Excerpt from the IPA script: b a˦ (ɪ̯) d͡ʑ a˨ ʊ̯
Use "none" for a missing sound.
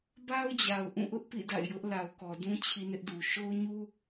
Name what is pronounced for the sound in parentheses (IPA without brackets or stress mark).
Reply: ʊ̯